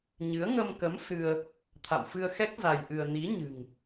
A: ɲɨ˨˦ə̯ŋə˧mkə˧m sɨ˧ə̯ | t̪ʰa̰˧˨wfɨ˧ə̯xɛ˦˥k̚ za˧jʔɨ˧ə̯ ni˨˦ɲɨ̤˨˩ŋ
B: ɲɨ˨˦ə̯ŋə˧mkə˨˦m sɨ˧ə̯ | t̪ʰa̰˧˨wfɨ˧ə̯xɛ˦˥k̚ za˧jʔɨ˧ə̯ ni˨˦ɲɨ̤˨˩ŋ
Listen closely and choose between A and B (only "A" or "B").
B